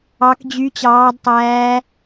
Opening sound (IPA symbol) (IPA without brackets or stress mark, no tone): ɑ